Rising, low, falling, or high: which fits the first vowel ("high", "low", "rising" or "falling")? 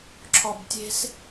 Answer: low